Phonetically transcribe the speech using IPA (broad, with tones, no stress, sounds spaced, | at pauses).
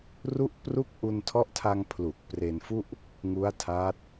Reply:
r u˥˩ ʔ p r u˥˩ k̚ ʔ u˧ n tʰ ɔ˦˥ ʔ tʰ a˧ ŋ pʰ l u˨˩ k̚ p r e˧ n f u˥˩ ʔ | ŋ u˦˥ a̯ tʰ aː˦˥ t̚